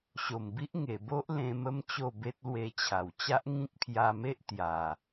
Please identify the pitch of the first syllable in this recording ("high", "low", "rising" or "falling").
low